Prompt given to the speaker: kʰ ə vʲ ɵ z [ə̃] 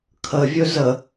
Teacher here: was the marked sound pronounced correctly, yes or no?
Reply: no